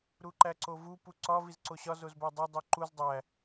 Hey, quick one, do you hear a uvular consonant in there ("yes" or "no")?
no